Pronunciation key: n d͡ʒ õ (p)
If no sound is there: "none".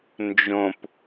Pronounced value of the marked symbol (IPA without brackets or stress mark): p